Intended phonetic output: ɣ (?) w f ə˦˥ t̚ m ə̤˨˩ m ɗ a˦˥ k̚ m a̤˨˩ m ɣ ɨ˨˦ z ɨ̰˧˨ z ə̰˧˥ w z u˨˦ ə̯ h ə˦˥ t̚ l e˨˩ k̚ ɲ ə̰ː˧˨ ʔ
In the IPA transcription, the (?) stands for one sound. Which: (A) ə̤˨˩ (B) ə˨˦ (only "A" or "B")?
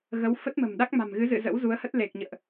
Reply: B